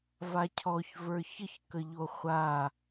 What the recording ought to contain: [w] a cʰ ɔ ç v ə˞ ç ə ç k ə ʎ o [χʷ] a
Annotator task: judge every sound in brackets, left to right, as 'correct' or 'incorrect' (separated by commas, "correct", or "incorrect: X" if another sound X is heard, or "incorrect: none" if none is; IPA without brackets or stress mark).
incorrect: v, correct